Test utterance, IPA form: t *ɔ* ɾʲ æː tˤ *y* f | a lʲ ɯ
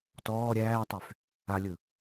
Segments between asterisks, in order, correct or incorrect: incorrect: ɔː, correct

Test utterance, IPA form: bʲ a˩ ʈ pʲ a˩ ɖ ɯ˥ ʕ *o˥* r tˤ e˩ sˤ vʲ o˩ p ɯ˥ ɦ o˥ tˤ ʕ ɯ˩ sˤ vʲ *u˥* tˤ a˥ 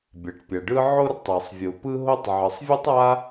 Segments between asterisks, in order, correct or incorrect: correct, incorrect: ɯ˥

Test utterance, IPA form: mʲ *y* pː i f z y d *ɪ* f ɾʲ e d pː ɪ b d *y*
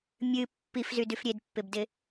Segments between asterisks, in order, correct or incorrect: incorrect: ɨ, incorrect: y, incorrect: ɪ

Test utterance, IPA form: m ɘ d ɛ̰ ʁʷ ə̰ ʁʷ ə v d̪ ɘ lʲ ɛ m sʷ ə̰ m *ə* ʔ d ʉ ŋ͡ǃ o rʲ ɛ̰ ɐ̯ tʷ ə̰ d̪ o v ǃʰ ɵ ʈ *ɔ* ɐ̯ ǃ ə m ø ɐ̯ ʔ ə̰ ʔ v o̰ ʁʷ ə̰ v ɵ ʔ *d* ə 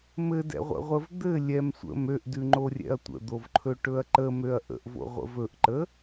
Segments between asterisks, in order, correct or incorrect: incorrect: ø, incorrect: ɵ, incorrect: ǃ

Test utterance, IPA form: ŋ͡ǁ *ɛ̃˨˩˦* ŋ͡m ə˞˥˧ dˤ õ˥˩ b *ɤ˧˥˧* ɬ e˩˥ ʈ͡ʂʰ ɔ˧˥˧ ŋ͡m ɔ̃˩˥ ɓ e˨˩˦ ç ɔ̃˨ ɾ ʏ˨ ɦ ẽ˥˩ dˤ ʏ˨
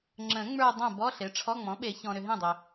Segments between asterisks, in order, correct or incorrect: incorrect: ə̃˨˩˦, incorrect: ɔ˧˥˧

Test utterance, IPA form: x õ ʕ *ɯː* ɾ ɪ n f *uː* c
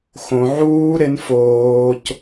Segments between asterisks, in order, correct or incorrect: incorrect: uː, incorrect: oː

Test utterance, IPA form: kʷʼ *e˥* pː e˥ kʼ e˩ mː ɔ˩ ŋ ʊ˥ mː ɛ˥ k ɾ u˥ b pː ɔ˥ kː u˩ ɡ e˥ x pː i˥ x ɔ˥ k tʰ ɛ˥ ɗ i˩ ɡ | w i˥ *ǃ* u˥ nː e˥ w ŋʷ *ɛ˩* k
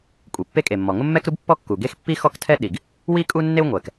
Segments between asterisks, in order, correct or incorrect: incorrect: e˩, incorrect: kʼ, correct

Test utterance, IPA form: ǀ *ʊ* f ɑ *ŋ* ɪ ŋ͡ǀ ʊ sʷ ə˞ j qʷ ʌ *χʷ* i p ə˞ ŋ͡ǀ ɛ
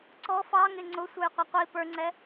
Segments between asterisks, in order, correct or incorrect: incorrect: ɔ, correct, incorrect: qʷ

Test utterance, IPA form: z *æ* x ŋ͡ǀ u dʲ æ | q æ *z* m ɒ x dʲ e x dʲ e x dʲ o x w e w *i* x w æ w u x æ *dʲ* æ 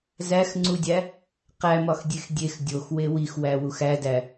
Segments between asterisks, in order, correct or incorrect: correct, incorrect: none, correct, incorrect: d

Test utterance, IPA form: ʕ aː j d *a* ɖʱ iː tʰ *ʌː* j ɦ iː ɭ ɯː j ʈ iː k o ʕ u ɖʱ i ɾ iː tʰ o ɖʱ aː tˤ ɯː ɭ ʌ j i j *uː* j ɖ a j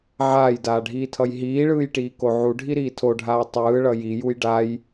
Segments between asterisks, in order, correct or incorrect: incorrect: aː, incorrect: ʌ, incorrect: u

